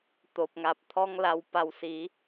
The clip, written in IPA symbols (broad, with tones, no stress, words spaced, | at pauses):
t̪o˨p̚ŋa˨p̚t̪ʰɔ˦ŋ la˧w pa˧wsi˨˦